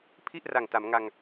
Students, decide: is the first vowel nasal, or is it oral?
oral